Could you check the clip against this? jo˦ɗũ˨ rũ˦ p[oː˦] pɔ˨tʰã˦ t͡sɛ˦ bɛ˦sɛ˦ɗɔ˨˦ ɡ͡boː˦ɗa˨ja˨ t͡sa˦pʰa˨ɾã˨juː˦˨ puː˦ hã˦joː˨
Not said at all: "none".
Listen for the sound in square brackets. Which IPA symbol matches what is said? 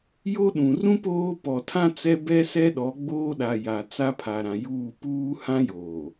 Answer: oː˦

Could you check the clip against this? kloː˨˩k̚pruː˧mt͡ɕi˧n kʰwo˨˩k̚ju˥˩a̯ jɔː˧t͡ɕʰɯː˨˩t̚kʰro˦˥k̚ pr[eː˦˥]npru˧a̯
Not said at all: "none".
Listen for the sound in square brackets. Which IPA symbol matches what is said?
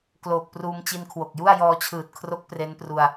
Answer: e˦˥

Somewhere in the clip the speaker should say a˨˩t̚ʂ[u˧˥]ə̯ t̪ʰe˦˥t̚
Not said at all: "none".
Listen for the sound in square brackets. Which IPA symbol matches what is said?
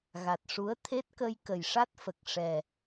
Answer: u˧˥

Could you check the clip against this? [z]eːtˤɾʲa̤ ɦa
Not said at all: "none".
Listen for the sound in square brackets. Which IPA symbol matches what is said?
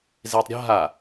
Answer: z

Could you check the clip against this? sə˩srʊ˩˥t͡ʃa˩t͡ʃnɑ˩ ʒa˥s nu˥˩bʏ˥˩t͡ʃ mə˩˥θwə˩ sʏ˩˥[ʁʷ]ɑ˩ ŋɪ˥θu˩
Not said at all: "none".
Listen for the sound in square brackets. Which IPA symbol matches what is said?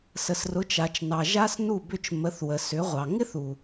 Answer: ʁʷ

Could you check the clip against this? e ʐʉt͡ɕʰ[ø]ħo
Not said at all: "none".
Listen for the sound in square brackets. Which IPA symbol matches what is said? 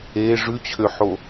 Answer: ø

